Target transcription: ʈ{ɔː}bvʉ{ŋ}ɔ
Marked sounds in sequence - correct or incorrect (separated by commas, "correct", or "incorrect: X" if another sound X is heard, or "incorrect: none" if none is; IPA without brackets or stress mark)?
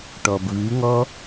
incorrect: ɔ, correct